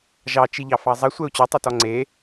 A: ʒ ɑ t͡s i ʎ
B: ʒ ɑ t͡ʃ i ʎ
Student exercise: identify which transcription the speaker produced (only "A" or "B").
B